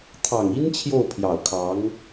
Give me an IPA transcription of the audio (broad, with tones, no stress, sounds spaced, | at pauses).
t̪ʰ ɑ˨˩ ŋ i˥ n t͡ɕʰ j o˥˩ ʊ̯ pʰ j ɑ˨˩ ʊ̯ kʰ ɑ˧˥ ŋ